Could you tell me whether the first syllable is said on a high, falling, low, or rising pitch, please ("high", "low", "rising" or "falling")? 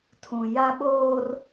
low